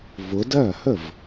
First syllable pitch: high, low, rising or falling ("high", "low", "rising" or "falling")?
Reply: rising